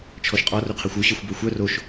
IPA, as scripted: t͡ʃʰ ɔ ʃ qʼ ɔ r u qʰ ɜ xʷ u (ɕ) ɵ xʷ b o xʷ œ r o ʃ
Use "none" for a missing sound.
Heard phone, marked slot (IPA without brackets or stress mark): ɕ